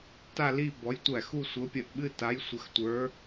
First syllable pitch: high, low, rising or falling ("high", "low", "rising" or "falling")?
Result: falling